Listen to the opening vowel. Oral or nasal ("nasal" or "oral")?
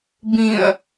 nasal